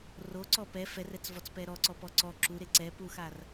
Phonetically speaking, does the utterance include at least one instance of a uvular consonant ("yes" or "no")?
no